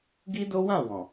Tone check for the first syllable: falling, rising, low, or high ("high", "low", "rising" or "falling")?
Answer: high